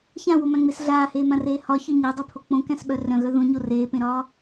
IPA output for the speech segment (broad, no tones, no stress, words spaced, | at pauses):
çãwomæ̃ŋ͡mes ɮaːheːmãreː hɒçœ ɲædˤepʰo k͡põkæ̃sɓœ rœ̃ɣœ ðõɲo reːpẽɾɒː